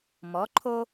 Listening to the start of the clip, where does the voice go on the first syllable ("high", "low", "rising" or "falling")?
rising